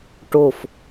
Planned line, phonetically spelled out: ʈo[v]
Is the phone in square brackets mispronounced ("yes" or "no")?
yes